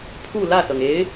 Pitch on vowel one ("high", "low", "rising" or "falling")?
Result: falling